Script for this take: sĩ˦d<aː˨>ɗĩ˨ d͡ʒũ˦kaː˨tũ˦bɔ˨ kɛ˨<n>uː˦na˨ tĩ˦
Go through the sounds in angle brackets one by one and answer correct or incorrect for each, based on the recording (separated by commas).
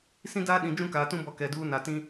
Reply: incorrect, incorrect